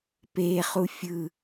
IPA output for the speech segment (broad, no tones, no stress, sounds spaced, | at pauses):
p eː χ u fʲ ɯ